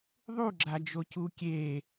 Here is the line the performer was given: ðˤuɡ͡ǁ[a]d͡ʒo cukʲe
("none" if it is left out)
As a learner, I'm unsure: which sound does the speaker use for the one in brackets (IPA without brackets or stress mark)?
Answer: a